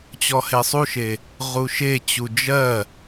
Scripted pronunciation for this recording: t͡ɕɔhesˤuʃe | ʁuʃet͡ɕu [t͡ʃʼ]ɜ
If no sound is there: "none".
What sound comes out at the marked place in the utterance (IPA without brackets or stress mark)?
d͡ʒ